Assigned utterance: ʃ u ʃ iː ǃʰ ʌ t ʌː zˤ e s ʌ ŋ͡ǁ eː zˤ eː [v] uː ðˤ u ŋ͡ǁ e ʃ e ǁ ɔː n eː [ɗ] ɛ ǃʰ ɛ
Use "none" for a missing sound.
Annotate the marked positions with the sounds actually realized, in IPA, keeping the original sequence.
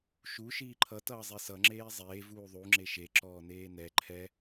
v, n

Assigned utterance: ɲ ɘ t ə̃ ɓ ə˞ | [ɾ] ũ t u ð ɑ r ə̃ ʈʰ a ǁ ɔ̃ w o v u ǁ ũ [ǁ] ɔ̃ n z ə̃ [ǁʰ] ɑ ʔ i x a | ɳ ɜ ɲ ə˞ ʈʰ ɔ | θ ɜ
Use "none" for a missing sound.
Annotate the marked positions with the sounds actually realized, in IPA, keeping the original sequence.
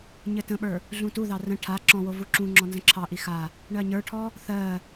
ɮ, ŋ͡ǁ, ǁʰ

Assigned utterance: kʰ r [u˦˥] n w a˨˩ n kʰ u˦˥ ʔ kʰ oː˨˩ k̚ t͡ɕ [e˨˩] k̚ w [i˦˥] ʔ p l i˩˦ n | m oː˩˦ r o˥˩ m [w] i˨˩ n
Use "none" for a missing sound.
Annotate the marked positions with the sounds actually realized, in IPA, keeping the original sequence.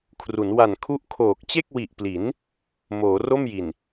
u˩˦, e˥˩, i˨˩, j

